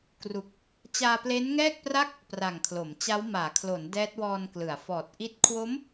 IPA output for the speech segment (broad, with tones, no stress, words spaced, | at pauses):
kru˨˩k̚ | t͡ɕaː˧ple˦˥nŋɛː˥˩k̚pra˥˩k̚ | pra˨˩ŋkʰlo˩˦mt͡ɕa˦˥w maː˩˦kʰlo˩˦n dɛː˦˥t̚wɔː˧nklɯ˩˦a̯fɔː˨˩t̚ ʔi˥˩t̚ kʰwo˦˥m